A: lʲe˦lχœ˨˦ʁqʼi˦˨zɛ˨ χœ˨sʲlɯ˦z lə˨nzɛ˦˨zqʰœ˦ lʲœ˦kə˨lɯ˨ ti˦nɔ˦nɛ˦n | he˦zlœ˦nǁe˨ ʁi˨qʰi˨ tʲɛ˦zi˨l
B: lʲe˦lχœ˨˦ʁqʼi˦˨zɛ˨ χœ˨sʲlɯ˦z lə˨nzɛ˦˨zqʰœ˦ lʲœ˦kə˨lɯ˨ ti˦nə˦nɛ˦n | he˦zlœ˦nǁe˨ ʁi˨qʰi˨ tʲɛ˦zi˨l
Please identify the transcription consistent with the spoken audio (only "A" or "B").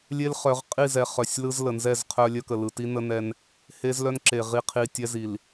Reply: B